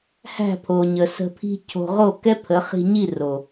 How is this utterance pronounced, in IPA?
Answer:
h æ̤˦˨ pʰ o˨ ɲ ə˨ s ə̤˧ pʰ i̤˦ cʰ o̤˧ ʁ o˦˨ k ɛ˦ pʰ ə˨˦ χ i̤˧ ɲ i˦˨ r o˨

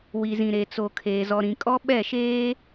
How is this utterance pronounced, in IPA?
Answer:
w i˨ z ĩ˨ ɾ e˨ t͡s o˨ kʰ eː˨ z ɔ˨ ɾ ĩ˨ kʼ ɔ˦ ɓ ɛ˦˨ ʃ eː˦

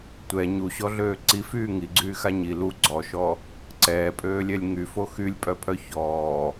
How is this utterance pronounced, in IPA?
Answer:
tʷ ɛ ɲ u ɕ ɔ ɮ øː ǀ i f yː ŋ i ɡ͡ǀ yː x a ɲ i l u ɡ͡ǀ ɔ ʃ ɔ | ǀ ɛː pʼ øː lʲ ɛ lʲ ŋ y f o x y lʲ pʼ œ pʰ œ ç ɔː

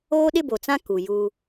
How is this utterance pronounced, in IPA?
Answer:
oː˦ ɗ ɪ˦ b o˨ t͡s ã˦ k u˨ j u˦

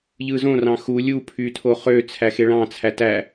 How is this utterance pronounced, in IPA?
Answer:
ʎ ɯː z õ r ɑ̃ x u lʲ u pʰ yː tʰ o χ ø t͡sʰ æ x e ɭ ɑ̃ t͡sʰ æ t æ

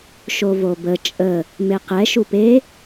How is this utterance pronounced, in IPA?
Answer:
ʃ o v o b ə t͡ʃʼ ə | m e q ɛ ʃ u p e

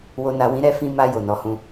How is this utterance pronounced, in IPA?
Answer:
w o˨ n a˨ w ĩ˨˦ ɾ ɛ˧ f ĩ˧ m a˧ j o˨ n ɔ˨˦ h ũ˧

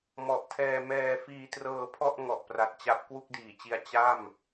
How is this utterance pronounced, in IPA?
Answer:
m ɔ˨˩ ʔ tʰ ɛː˧ m ɛː˧ f iː˧ t r ɤː˧ pʰ ɔ˥˩ ʔ ŋ ɔ˨˩ ʔ p r a˨˩ t̚ t͡ɕ a˦˥ p̚ k w u˥˩ k̚ d iː˨˩ t͡ɕ i˧ a̯ t͡ɕ a˥˩ m

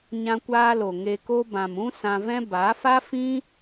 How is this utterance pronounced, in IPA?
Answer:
ɲ ã˧ kʷ aː˧ l o˨ ŋ e˧ k o˦ b ã˨ m ũ˦ s ã˧ v ɛ̃˦ b a˨˦ f a˦ f ĩ˦

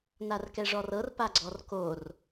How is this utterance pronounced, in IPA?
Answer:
n a r k ɛ ʐ ɔ r ɤ r p a ɡ͡ǀ ɔ r k o r

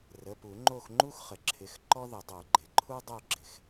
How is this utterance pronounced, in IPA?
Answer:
r ə˩˧˩ p u˨˩˦ ŋ͡ǃ o˦˨ x ŋ͡ǃ u˦ x χ ə˩ ǁʰ ɪ˩˧˩ x ǃ ɔ˦ ð ə˨˩˦ dˤ o˨˩˦ ɡ͡ǃ ɪ˩ ǃʰ u˦ dˤ o˦˨ ɡ͡ǁ ɪ˩ x

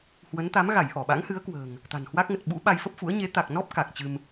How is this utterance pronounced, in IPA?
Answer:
h w ə˨˦ n t̪ a˨˦ m ɣ a˧˩ j ʔ ɔ˧˩ ɓ a̰˧˥ ŋ h ɨ˨˦ ə̯ k w ə̤ː˨˩ ŋ | t̪ a̤˨˩ n h w a˦˥ k̚ ŋ ə˨˩ t̚ ɓ ṵ˧˥ ɓ a˧ j f ə˦˥ p̚ f ṵ˧˥ ə̯ ɲ e˨˦ t̪ a˨˩ k̚ n ɔ˦˥ p̚ k a˨˩ k̚ t͡ɕ ɨ˧ m

